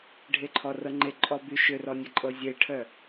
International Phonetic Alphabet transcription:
ɖʱeǃʰɔrɤŋ͡ǃe ǃʼɔby ʃʏrɔnʲə ǃʼɤzʲeʈʰœ

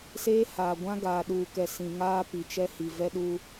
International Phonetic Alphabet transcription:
seː˦ haː˨ɡʷã˦ ɡaː˨ɗuː˨kɛ˨ sĩ˨ŋaː˦ pi˨t͡ʃɛ˦hi˨ vɛ˦ɗuː˦

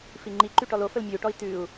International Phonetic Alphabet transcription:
fiŋ͡ǃi ǃyʈɔlo fəlmʲʉu̯ʈɔi̯ tʉu̯

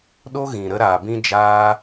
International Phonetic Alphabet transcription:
ɗo˦ɣĩ˨ ɾə˧ɾaː˨bĩ˧ d͡ʒaː˧

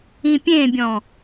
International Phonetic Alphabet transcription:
ĩpʲẽbʲɔ̃

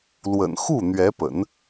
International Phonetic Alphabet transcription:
lwə̰˨˩nxu˥˩ n̪ɥɛ˧˥pə̰˨˩˦n

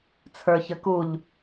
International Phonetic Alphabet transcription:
t͡sʰə˞çəkuʎ

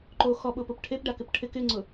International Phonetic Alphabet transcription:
ǃo xɔɓʊːpʊp ʈʰepɖakɪp ʈʰɪk ɪŋ͡ǀʊ

